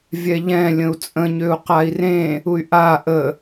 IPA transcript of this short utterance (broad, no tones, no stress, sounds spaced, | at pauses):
vʲ ɛ ʎ ɛ̃ lʲ ə̃ u̯ t͡sʼ ə̃ ɲ ø u̯ q a i̯ r ẽ | u y̯ ʔ a ʔ ə